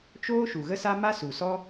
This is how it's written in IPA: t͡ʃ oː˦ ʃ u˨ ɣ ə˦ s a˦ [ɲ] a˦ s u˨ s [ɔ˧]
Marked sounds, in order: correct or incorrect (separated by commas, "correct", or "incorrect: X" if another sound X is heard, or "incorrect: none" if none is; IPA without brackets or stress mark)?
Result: incorrect: m, incorrect: ɔ˦